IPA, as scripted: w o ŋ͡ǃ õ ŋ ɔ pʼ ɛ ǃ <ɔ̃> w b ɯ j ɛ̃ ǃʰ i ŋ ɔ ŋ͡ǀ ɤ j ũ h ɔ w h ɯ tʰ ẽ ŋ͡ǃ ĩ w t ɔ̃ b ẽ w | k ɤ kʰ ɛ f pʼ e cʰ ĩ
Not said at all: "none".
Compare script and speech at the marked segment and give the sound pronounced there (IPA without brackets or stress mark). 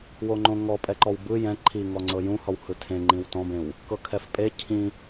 ɔ